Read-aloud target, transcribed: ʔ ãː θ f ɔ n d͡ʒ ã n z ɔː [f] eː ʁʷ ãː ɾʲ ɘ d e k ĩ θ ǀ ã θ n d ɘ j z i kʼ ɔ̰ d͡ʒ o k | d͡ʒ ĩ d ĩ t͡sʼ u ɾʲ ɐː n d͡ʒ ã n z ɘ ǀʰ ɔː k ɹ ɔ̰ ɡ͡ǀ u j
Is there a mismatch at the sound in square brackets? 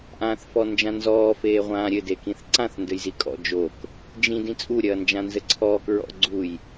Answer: no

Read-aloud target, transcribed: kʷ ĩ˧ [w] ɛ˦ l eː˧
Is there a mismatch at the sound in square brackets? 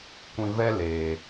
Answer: yes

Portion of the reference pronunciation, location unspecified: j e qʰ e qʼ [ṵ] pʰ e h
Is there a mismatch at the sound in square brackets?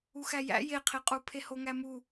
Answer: yes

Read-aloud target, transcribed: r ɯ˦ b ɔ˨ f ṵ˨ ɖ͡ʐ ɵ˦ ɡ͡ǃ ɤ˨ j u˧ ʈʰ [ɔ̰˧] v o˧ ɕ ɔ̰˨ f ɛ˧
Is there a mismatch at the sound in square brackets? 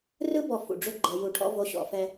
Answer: yes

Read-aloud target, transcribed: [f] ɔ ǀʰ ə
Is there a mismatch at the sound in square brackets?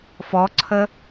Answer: no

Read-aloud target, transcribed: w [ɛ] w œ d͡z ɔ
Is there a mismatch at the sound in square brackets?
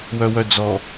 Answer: yes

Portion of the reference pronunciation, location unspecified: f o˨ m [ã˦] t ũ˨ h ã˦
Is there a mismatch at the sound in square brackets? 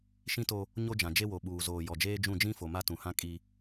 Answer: yes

